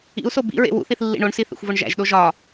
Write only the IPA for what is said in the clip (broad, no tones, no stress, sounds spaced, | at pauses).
ḭ u̯ s o b ḭ ɹ ḛ w ṵ θ i θ lː ḭ ɳ o ɳ s i θ ḛ xʷ v o ɳ ʒ æ̰ ʒ ɗ o ʒ ɒ